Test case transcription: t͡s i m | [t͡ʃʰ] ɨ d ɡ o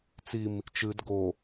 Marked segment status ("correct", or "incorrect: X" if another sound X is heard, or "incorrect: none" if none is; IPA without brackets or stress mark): incorrect: t͡ʃ